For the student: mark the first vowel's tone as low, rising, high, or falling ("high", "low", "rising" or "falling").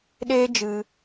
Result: high